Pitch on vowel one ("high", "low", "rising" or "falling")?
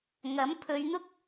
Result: rising